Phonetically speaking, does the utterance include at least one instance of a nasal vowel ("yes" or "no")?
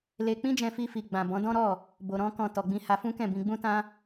yes